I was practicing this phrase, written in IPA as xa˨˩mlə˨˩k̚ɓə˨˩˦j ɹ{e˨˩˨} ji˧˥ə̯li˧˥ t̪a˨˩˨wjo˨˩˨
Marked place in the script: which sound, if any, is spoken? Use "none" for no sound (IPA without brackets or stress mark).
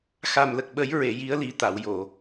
e˨˩˨